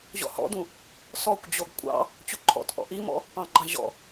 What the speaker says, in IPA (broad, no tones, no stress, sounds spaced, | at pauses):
ʑ ɔ̰ h ɔ̰ d ũ | s ɔ kʷ d͡ʑ o ɡ kʷʼ ɑ̰ | t͡ɕ u ǃʰ ɔ̰ t ʔ ɔ̰ ʔ i m ɔ̰ | p ɑ̃ ɡ͡ǃ ɑ̃ ʑ ɔ̰